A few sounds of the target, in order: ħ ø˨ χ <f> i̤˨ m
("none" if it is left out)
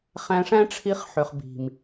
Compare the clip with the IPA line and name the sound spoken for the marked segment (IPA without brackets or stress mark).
b